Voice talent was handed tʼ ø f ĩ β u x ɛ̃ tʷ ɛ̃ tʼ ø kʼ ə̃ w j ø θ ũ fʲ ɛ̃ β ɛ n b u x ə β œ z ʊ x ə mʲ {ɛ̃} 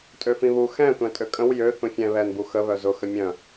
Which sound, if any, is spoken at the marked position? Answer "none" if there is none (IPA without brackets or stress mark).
œ̃